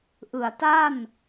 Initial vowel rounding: unrounded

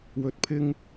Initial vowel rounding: rounded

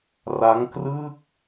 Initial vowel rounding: unrounded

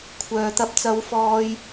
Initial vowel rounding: rounded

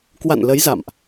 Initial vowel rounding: unrounded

